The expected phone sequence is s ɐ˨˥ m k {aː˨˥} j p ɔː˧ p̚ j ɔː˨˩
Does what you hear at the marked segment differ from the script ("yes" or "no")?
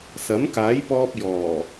no